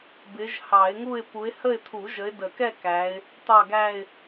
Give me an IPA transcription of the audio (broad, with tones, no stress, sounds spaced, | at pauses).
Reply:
b ɪ˨˦ ʒ h ɑ˨˩˦ ɪ̯ ŋ u˥˧ ɪ̯ p u˨˦ ɪ̯ h ə˥˧ ɪ̯ t̪ʰ u˨˩˦ ʒ ə˨˦ ɪ̯ d ə˨˩˦ k ɛ˥˧ k æ˨˦ ɪ̯ | t̪ ɑ˥˧ ɡ æ˥˧ ɪ̯